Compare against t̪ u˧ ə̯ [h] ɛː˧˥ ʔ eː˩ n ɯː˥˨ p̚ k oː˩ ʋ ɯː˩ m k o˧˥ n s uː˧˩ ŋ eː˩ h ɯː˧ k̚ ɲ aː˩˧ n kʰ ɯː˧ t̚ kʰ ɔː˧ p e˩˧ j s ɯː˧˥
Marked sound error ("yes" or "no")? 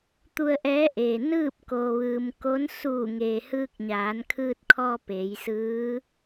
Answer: yes